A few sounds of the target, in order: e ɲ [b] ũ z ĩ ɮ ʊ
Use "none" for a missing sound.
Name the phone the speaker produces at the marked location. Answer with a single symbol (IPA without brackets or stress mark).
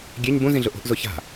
b